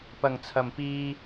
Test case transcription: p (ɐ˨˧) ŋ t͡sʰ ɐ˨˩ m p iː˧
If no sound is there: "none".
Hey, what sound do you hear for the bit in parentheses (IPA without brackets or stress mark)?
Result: ɐ˨˩